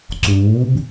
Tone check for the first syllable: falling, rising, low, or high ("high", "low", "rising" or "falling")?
rising